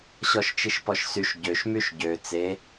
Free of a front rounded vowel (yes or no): no